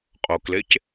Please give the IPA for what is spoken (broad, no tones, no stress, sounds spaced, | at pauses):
qʼ o k l e c